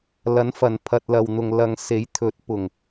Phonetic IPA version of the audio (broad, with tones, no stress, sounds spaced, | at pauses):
l ɐ˨˥ n f ɐ˨ n pʰ ɐ˨ t̚ l ɐ˨ w n̪ ʊ˨ ŋ l ɐ˨ ŋ s e˨˥ j t̪ʰ ɵ˨˥ t̚ p ʊ˨ ŋ